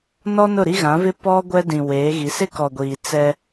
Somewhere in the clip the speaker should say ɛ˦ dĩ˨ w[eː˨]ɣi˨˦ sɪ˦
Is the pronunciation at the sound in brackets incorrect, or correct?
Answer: incorrect